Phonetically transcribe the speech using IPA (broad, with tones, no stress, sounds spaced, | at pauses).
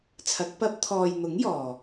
t͡sʰ ɐ˨˥ k̚ p ɐ˥ p̚ t̪ʰ ɔː˨ j n̪ ʊ˨˥ ŋ j ɔː˨